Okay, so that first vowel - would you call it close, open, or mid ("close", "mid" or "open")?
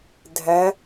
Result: open